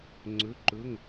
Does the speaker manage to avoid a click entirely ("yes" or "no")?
no